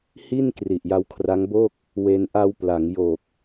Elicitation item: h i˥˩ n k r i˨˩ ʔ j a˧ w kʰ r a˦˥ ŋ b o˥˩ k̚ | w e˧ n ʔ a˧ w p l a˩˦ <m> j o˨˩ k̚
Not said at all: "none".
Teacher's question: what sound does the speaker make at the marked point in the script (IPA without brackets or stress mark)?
ŋ